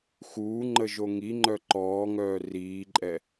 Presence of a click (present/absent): present